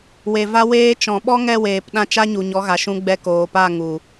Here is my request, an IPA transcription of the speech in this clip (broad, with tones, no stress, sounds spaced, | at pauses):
w e˨ v a˧ w eː˧ t͡ʃ ɔ̃˨ ɓ ɔ˦ ŋ ɛ˦˨ w eː˨ p ɗ ã˧ t͡ʃ a˦ ɲ u˨ ɲ ɔ˨˦ ɣ a˨ ʃ ũ˧ ɡ͡b ɛ˧ k oː˨ p a˦˨ ŋ u˨